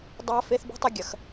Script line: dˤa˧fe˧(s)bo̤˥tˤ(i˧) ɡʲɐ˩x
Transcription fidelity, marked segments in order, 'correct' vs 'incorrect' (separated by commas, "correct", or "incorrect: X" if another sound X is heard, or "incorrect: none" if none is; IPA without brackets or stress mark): incorrect: θ, incorrect: ɨ˧